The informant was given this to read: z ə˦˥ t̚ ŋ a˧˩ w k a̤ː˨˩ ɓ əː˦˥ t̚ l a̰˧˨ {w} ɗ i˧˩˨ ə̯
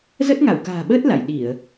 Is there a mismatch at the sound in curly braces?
yes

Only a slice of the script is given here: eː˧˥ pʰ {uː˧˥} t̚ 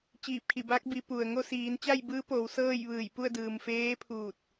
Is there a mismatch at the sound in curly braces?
yes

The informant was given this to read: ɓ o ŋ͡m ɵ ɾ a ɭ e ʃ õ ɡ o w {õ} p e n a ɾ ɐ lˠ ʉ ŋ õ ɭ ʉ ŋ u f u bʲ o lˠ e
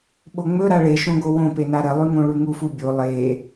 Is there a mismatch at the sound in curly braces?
no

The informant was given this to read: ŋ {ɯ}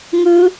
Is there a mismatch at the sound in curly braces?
no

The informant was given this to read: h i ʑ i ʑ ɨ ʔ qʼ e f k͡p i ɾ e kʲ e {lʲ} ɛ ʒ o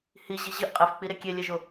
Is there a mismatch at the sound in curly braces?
no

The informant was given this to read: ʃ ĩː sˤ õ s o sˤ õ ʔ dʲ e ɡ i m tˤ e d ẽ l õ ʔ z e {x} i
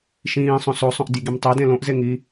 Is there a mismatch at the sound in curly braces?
yes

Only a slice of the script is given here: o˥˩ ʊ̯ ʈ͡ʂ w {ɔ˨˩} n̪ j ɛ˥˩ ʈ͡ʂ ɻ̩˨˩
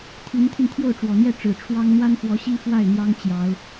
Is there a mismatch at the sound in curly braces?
no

